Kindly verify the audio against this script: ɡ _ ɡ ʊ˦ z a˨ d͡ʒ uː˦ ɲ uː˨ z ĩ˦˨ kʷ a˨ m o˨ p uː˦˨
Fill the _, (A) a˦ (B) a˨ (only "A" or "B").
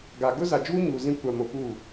B